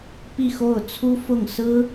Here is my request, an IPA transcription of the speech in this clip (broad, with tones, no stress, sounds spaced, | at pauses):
p i˥˧ x o˥˩ ʊ̯ t͡sʰ u˥ f ʊ˥˩ ŋ s ɹ̩˥